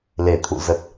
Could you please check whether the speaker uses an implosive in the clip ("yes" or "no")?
no